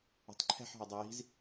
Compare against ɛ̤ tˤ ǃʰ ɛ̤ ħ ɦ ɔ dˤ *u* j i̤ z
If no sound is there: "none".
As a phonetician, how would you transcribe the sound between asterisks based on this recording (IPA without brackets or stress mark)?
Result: o